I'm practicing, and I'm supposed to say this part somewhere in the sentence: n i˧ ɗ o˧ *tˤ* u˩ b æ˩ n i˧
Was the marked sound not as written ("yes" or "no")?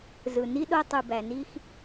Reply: no